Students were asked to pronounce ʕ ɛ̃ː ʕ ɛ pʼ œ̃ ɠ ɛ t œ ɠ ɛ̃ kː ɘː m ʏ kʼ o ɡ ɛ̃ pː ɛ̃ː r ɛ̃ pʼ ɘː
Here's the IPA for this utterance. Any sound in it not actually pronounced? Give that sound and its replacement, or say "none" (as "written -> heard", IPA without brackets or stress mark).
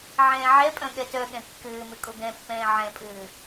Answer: r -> ʕ